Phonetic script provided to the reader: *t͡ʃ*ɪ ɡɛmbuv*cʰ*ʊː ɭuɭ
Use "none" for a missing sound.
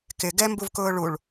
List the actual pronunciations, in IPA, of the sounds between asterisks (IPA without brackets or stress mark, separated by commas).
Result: k, k